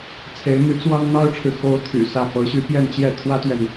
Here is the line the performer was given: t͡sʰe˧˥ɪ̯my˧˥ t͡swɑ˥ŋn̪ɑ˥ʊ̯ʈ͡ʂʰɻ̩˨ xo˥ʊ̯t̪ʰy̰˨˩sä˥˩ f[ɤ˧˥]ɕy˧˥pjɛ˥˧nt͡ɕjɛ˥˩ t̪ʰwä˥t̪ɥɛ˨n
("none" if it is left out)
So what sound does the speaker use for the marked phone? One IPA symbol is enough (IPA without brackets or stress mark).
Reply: ɤ˧˥